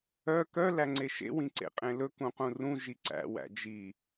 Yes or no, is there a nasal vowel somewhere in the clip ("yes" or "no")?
yes